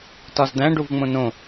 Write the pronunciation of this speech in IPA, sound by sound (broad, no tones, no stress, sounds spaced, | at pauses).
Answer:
t ɒ z d̪ æ̃ ɖ u v ŋ͡m õ n õ